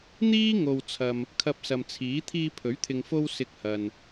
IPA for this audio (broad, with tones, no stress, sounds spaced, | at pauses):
n̪ iː˥ ŋ o˨ w t͡sʰ ɐ˨ m | kʰ ɐ˧ p̚ s ɐ˨ m t͡sʰ iː˨˥ t̪ʰ iː˧ pʰ ɵ˨˥ ɥ t̪ʰ ɪ˨ ŋ f o˥ w s ɪ˧ k̚ h ɐ˨ n